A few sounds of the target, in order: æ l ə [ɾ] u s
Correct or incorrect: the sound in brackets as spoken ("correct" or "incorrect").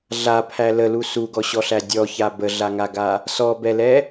incorrect